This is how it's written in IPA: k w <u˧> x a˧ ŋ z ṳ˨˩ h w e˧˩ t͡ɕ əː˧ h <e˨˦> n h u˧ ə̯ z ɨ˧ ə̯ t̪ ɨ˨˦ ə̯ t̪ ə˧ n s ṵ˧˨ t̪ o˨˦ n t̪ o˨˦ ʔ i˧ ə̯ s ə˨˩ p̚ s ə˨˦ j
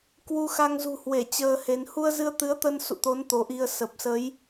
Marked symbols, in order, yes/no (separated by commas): yes, yes